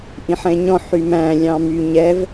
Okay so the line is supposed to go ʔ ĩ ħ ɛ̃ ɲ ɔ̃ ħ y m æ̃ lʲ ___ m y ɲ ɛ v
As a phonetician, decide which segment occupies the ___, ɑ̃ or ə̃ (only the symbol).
ɑ̃